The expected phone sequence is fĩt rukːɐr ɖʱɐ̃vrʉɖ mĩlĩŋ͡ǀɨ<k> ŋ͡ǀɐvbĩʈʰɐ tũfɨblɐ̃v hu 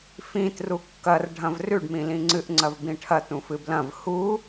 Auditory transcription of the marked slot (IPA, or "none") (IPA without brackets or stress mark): ʔ